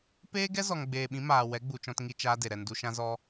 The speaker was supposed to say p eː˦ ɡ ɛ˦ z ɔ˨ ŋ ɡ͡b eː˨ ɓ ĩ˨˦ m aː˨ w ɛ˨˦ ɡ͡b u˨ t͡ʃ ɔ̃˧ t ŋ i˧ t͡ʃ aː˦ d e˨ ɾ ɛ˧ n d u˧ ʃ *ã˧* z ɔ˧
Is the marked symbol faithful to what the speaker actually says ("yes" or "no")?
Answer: no